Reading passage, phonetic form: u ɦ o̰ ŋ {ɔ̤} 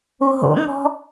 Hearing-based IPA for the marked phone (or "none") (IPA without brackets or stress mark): ɔ̤